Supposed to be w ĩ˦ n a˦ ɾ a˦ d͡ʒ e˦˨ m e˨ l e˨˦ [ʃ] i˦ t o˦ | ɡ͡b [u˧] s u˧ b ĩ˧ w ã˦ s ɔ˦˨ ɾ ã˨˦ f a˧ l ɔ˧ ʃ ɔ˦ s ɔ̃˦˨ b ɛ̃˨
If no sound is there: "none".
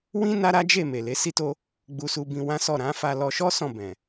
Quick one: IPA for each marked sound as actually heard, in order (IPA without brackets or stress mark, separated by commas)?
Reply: s, u˧